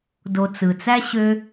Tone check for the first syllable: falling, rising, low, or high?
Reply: low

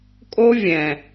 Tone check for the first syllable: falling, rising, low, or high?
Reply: high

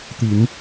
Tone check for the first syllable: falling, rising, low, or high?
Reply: low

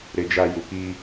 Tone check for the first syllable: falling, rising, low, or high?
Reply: low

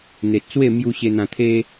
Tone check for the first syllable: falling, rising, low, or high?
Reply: low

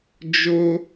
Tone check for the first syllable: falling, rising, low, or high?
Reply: high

